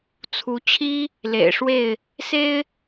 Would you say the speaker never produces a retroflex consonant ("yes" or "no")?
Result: no